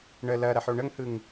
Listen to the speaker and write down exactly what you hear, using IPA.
ɳ ə l ɐ ɾ ɐ ħ o ɳ ə ŋ h ɯ ŋ

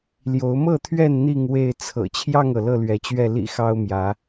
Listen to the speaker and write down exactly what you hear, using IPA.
l j o˨˦ ʊ̯ m ɤ˥˨ t̪ʰ ɥ ɛ˥˨ n n̪ i˥˨ ŋ w e˥˨ ɪ̯ t͡sʰ ɤ̰˨˩ t͡ɕʰ j ɑ˥˨ ŋ ɤ˩ l ɤ˥˨ l ɥ ɛ˨˦ t͡ɕ ɥ ɛ˥˨ l ḭ˨˩ x ɑ˦ ʊ̯ m j ä˨˦

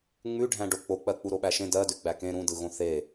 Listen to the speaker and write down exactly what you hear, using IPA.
ŋ͡m ʉ ɖʱ æ̃ ɖ o k͡p o k͡p ɜ k͡p u ɾ o ɓ æ ʃ ẽ d ɜ d ʉ ɡ͡b æ k ẽ ɾ ũ d ɯ ɣ õ θ e

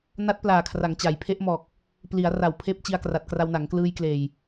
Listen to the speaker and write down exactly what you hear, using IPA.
n a˦˥ t̚ p l aː˨˩ kʰ r a˩˦ ŋ t͡ɕ a˩˦ j pʰ e˦˥ ʔ m ɔː˨˩ k̚ | p l i˩˦ a̯ r a˨˩ w pʰ eː˦˥ p̚ t͡ɕ i˧ a̯ k r a˨˩ t̚ k r a˧ w n a˩˦ ŋ k l ɯː˧ j k l eː˨˩ j

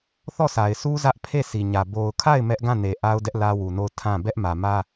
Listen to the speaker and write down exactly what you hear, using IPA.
θ ɔ˦˨ sʰ a˨ ɪ̯ sʰ u˦ z ä˦ ʔ pʰ e˦˨ sʰ i˨ ɲ ä˨ b o˨ ʊ̯ kʰ a˦˨ ɪ̯ m ɛ˦ ʔ ɡ ã˦˨ n e˨ ʔ a˦ ʊ̯ d ɛ˦ ʔ l ä˦ w u˨ n o˦˨ ʊ̯ tʰ ã˦˨ b ɛ˦ ʔ m ä˨ m ä˦

